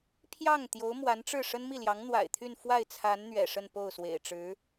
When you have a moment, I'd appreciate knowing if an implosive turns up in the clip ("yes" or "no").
no